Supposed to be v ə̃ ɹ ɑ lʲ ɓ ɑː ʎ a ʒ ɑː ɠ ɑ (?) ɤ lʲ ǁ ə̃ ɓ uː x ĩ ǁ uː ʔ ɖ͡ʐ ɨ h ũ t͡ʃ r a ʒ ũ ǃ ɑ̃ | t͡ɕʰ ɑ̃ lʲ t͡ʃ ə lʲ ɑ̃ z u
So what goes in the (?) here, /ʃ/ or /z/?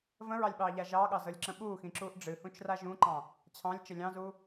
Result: z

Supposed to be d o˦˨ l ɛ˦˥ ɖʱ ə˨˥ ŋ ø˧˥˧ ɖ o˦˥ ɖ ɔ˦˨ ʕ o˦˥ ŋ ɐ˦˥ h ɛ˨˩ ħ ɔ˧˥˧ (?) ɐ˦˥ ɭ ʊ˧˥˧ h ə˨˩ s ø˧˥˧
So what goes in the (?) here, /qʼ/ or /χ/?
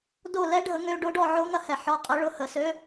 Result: qʼ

